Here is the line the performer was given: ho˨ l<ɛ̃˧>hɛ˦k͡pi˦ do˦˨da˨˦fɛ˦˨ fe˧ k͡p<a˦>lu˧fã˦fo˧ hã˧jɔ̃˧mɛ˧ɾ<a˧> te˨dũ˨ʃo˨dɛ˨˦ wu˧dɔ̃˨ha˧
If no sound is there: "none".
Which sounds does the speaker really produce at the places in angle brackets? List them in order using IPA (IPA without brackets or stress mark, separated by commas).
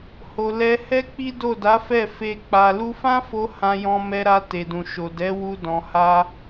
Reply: ɛ˧, a˨, a˧